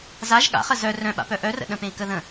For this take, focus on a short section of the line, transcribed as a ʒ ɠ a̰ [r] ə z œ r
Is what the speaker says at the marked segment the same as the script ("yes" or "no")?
no